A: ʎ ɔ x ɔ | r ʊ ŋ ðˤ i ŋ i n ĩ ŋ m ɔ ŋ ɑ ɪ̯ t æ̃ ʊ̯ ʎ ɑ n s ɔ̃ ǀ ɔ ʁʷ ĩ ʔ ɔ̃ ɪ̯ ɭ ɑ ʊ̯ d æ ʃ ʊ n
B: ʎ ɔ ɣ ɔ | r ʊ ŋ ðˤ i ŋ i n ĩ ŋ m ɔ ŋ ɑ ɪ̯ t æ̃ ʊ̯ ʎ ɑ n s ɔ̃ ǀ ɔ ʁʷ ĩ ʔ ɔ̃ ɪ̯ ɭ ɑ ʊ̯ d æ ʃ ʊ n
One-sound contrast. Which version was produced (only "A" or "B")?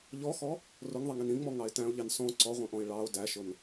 A